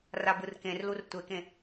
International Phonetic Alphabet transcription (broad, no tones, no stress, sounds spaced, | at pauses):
r a b ɯ r k ẽ r l u r tʷ e k ẽ